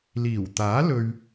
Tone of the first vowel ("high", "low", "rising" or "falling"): low